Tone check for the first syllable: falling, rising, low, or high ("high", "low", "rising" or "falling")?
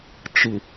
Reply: low